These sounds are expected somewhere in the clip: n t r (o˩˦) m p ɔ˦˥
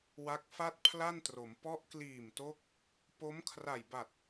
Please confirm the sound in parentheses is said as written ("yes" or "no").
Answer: yes